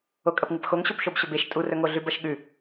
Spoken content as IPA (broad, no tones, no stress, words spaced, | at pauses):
okʼɐpŋɨpxoŋ ɕopʃobɕɵbeʃ tʼurɵŋo ɮʉbɐʃɠʉ